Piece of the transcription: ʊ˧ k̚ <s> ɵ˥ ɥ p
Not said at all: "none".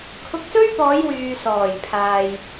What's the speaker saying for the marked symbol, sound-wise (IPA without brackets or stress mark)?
s